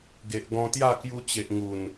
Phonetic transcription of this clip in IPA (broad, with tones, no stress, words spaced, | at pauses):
ɡe˨ʔ ɡɔ̃˧t̪ja˥˧ kju˧ t͡ɕe˨ʔ ŋu˨˩n